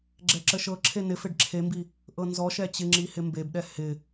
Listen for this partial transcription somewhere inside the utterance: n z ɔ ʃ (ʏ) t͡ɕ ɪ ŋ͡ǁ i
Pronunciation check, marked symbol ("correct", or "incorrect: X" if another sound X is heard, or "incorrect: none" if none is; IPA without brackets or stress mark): incorrect: ɛ